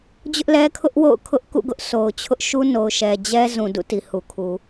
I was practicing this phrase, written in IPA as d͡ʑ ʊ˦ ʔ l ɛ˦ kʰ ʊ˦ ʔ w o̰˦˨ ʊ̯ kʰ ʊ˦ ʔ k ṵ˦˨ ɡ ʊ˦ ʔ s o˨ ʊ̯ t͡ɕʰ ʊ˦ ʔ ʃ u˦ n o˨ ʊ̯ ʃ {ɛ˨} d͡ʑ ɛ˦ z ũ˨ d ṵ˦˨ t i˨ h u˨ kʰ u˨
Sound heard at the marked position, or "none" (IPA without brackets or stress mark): ɛ˨